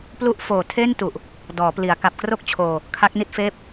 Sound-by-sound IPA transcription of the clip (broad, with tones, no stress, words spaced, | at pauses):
plu˦˥ʔ foː˨˩tʰe˥˩ntu˨˩ʔ | dɔː˩˦pli˩˦a̯ ka˨˩p̚kro˥˩k̚t͡ɕʰoː˧ | kʰa˦˥k̚ ni˥˩t̚feː˥˩p̚